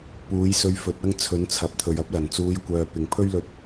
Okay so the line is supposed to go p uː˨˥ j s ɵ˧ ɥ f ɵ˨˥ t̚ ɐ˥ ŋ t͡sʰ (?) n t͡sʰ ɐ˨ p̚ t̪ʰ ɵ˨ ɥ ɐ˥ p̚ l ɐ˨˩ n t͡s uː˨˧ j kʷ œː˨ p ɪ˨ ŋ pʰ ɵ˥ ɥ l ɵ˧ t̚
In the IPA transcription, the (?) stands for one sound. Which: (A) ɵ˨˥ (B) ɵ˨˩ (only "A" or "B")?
A